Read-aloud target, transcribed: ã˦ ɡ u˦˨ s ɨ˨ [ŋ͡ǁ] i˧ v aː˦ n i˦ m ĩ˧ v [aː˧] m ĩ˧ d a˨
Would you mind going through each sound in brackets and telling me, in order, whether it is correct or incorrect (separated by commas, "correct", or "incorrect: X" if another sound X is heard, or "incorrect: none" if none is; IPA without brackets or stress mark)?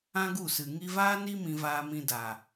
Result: incorrect: ŋ, correct